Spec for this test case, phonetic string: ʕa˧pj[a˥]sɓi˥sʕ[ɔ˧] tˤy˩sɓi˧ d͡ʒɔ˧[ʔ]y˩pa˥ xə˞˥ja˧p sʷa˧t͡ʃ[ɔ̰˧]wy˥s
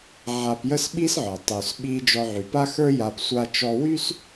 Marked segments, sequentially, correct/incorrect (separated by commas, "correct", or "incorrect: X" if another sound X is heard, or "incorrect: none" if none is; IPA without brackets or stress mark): incorrect: ə˥, incorrect: ɔ˩, incorrect: ʕ, incorrect: ɔ˧